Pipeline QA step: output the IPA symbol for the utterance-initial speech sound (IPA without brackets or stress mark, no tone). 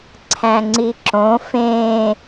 ǀʰ